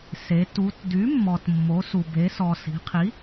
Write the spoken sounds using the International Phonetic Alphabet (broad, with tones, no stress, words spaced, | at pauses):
se˩˧ tu˩˧t dy˩˥mːɔ˩tmːo˩˧su˩ be˩˧sɔ˩si̤˩˧qʰi˩˥